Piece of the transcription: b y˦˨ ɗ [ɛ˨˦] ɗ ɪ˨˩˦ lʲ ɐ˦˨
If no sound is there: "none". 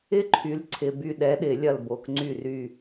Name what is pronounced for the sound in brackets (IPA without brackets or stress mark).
ɛ˨˦